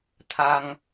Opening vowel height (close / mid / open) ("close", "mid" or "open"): open